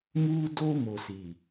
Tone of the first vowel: high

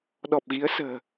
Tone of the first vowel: low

